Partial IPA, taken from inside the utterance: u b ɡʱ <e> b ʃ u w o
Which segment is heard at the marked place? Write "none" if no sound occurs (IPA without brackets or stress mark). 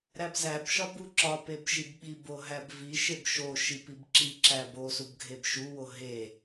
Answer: e